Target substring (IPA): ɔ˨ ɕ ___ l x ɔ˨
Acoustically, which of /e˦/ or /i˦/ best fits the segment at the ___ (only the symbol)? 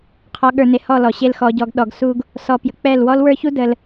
e˦